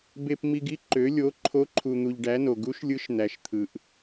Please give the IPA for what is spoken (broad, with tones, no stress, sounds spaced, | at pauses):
b e˧ p m i˧ ɡ i˧˥ ǃ ø˧˥ lʲ o˧˥ ǃʰ o˧˥ ǃʰ u˧ n̪ u˧ ʎ ɖ æ˧˥ n o˧ ɡ u˧˥ ʃ lʲ ɯ˧˥ ʃ n̪ æ˧ ʃ t̪ʰ ɯ˧ ʔ